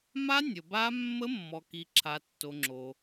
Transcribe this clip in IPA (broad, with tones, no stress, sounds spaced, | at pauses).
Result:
m a˦˥ nʲ ə˨ b a˦˥ mː ə˦˥ mː ɔ˨ k i˨ ǁʰ a˨ tː o˨ ŋ͡ǁ o˨